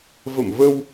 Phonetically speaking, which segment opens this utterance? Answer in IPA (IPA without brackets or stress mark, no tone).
v